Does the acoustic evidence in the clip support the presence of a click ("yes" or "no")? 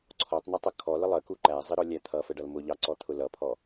yes